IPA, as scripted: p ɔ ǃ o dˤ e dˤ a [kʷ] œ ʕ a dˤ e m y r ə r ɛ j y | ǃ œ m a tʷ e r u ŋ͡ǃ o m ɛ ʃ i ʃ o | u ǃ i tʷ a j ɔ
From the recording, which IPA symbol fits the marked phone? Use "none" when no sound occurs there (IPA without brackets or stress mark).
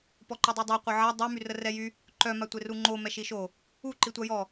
qʷ